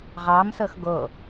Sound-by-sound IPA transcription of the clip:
ʁɑmsɤx ɡo

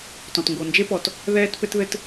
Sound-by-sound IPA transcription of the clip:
tɔ̃˩tŋɡo˩nd͡ʒe˥pɔ˩t | ðɛː˥tpɘ˥t ðɘ˥t

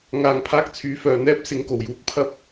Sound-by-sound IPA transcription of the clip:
ŋaː˧ŋ pʰaː˥k̚ t͡sʰyː˨˥fœː˨n̪ɛː˥p̚ sɪ˨˧ŋ ko˨˩wjuː˨˥k̚ pʰɐ˥p̚

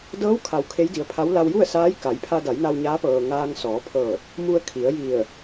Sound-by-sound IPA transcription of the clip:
dɤː˧˥wkʰa˩˧w kʰe˧˥jdi˩˧ə̯pʰa˧˥w la˧wju˥˨ə̯saː˧˥j ka˩˧jpʰa˧da˩˧jna˧w ɲaː˧˥pɤː˩ ŋaː˧ŋ sɔː˩˧pʰɤː˧˩t̚ | mu˧ə̯ kʰi˩˧ə̯ ji˧˩ə̯

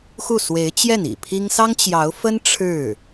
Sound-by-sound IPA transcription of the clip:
xu˥˩ swe˧˥ɪ̯t͡ɕjɛ˥˩nḭ˨˩ pʰi˥ŋ sɑ˥ŋt͡ɕjɑ˧˥ʊ̯fə˥n ʈ͡ʂʰɻ̩˥˩

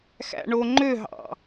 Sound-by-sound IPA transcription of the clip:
xæ̰ɳoŋ͡ǃøɦɑ̰

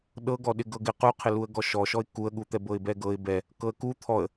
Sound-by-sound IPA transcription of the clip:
ɗɤɡɔɗɪ ɡɤɡɪ quqʰɪ luə̯ɡɔʃɔʃɔɪ̯ kuə̯ɠut̪ɛ bɤɪ̯bɛɡɤɪ̯ bɛ | kɤə̯ku t̪ʰɔə̯

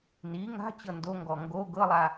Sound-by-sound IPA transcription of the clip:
ni ŋa̤ t͡ɕɤndoŋɡɔ ŋɡo ɡɤlˠa

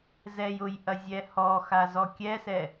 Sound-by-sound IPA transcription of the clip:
zɛj ʊjʔɐ zʲɛhɔxa zɔkʲɛsɛ

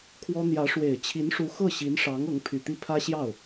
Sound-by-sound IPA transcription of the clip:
kʰwɔ˥ n̪jä˧˥ʂwe˨˩ɪ̯ t͡ɕʰi˧˥nʂu˧˥ xɤ˥˩ ɕi˧˥nʂɑ˧˥ŋ ɤ˧˥ŋpʰy˨˩t̪i˥˩ pʰä˥ɕjɑ˥˩ʊ̯

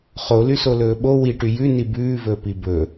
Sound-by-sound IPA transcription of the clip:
χolysolɵː ɓo wiʈy jʉni bʉːvɵːpi bɵ

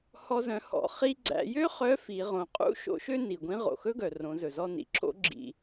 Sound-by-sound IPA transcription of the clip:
hɔ˧zœ̃˩˧hɔ̰˩˧ χi˧ɡ͡ǀæ̰˩˧jø˥ χœ˧˥fi˩˧ ʁõ˩˧qʼṵ˧˥ ʃo̰˧˥ʃø˥ ni˩ɡʷĩ˧˥ ʁo̰˩xɵ˥ɡœ˩ rõ˩˧zɵ˩zɔ˧ nḭ˩ǁo̰˧˥ ɡ͡ǁḭ˧

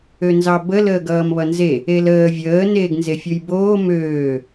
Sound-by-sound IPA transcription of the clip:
ønzɑbə ləːɡʌːmβʌnze | eləː vʲəː neːɡnzefʲojboː møː

